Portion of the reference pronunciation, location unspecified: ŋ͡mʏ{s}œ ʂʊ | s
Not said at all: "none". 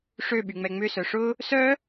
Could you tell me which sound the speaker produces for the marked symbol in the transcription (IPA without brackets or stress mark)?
s